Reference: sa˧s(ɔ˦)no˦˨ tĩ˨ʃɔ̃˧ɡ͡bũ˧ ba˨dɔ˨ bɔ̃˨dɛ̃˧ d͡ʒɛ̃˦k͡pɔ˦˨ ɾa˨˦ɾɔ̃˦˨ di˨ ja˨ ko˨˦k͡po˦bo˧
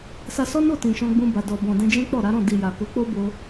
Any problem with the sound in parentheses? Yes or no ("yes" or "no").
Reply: no